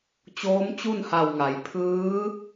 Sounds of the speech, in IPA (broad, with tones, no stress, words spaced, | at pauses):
t͡ɕoː˧˥mt͡ɕu˥˨nha˧˩wŋa˩˧j pʰɯː˧˥